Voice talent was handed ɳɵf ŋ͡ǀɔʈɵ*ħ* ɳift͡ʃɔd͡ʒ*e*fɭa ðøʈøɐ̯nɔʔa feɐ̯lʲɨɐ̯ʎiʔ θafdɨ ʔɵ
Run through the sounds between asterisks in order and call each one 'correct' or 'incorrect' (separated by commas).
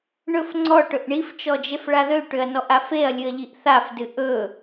incorrect, correct